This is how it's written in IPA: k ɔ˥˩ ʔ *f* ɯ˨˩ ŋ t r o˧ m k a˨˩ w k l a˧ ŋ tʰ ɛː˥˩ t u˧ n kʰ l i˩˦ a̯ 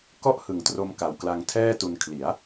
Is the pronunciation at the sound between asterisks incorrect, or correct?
incorrect